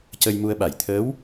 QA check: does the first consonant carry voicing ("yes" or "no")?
no